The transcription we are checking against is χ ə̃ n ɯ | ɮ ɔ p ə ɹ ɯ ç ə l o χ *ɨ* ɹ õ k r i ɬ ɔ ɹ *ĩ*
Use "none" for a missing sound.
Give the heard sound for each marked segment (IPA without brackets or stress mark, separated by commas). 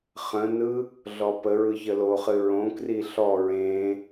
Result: ɨ, ẽ